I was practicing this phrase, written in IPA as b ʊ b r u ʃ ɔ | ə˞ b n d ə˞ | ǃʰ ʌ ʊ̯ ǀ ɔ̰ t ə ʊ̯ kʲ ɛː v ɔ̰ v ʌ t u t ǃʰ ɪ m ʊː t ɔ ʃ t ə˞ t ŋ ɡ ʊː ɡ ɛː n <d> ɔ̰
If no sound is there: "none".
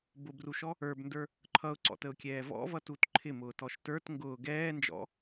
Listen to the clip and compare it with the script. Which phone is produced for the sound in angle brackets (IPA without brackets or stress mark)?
d͡ʒ